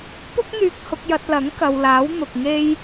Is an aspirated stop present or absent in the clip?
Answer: absent